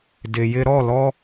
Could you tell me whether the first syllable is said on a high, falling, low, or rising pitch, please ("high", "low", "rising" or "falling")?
low